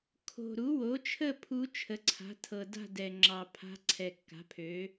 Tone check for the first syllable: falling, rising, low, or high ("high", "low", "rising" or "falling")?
low